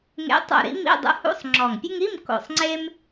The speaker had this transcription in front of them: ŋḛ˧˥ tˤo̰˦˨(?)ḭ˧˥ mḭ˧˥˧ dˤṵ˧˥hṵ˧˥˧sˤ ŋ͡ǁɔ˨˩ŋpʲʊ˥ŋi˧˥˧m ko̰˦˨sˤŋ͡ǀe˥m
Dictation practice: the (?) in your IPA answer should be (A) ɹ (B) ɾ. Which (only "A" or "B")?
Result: B